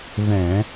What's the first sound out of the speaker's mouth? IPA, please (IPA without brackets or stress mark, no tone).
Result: ð